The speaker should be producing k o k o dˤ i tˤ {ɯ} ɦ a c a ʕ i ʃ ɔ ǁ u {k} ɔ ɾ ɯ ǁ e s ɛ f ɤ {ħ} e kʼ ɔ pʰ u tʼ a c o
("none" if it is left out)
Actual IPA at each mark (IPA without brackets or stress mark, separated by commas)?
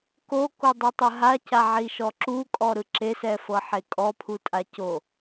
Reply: ɯ, kʼ, ħ